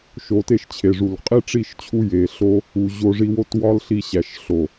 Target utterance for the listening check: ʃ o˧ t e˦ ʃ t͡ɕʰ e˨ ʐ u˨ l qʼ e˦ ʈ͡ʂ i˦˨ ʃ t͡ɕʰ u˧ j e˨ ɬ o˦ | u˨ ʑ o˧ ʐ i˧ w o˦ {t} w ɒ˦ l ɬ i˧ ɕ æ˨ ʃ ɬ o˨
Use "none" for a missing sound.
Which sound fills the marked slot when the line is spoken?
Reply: t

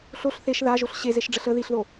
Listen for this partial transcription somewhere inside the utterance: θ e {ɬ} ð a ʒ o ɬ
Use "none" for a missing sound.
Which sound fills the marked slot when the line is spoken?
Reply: ʃ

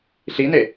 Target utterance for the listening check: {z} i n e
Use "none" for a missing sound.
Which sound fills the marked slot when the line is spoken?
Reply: ɬ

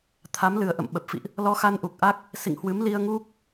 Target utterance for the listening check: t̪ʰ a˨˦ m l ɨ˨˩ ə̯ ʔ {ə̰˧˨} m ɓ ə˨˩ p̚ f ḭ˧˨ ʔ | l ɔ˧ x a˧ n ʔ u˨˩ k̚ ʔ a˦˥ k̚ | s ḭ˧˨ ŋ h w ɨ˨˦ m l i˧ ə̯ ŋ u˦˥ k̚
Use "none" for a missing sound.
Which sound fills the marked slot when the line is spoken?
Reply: ə̰˧˨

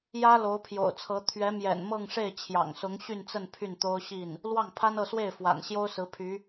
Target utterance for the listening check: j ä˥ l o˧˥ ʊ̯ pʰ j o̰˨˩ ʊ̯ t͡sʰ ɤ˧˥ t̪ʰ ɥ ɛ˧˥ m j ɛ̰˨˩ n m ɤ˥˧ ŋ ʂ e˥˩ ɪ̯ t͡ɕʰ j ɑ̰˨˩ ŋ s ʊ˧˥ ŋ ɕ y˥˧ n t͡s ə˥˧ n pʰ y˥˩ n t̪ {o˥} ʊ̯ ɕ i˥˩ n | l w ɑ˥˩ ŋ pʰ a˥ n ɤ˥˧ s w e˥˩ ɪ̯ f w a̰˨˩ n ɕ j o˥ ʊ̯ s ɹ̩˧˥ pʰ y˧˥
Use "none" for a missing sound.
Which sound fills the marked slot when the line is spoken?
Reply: o˥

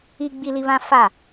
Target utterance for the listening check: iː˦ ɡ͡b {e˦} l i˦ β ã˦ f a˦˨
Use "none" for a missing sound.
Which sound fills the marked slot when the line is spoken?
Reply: i˦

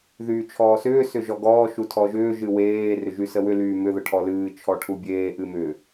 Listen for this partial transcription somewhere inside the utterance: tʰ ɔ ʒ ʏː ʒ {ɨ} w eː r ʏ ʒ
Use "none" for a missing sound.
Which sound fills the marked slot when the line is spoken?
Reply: ɨ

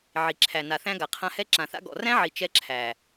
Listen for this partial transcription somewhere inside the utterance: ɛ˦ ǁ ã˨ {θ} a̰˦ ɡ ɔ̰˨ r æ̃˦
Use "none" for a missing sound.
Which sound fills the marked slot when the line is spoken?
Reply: θ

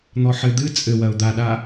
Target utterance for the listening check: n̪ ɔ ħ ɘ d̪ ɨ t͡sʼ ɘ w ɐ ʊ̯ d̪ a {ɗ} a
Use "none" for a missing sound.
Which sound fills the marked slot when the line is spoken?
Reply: ɗ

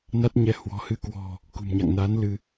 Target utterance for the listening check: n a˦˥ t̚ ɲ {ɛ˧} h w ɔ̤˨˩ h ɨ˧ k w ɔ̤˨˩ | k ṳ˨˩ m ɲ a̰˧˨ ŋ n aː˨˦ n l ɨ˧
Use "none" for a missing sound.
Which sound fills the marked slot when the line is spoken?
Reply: ɛ˧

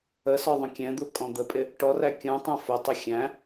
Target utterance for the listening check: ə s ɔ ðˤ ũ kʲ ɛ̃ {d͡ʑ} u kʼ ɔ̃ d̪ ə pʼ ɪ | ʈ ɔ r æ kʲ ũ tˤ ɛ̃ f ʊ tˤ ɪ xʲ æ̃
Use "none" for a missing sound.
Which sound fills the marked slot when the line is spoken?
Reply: d̪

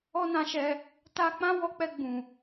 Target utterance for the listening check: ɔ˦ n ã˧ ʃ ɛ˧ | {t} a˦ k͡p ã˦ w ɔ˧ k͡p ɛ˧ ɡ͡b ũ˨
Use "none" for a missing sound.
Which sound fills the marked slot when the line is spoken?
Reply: t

